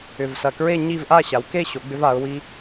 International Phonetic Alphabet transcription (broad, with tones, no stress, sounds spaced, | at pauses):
ʏ˧˩ v s ɐ˧˩ k ɹ e˥˧ ɲ i˥˧ v ʔ a˥˧ ɕ a˩˧ w k e˥˧ ɕ o˩˧ ɡ͡b ʏ˧ v a˩˧ ʊ̯ w i˧